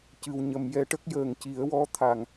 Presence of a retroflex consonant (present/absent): present